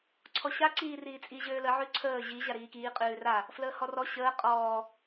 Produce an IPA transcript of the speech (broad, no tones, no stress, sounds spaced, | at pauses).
ǀʰ ɔ ɕ a ǀ iː r iː t͡sʼ i ʑ øː l ə ʕ ʉ ǀʰ əː ʑ i ʑ a ɾ iː k iː qʼ ʉː r a | f l əː h ɔ r ɔ ɕ əː qʼ ɔː